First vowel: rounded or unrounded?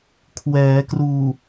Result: unrounded